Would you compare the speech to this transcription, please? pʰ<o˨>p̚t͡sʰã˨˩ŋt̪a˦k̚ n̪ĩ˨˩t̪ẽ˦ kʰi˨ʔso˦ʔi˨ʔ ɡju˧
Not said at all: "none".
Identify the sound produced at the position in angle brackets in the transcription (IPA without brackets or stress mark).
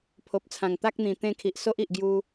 o˨